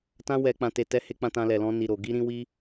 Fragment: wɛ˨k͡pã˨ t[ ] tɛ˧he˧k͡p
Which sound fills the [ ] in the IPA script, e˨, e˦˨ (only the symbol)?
e˨